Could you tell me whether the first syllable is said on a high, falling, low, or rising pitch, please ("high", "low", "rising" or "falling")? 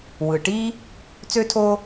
low